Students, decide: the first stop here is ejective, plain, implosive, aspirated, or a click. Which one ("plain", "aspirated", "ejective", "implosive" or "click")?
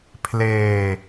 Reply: aspirated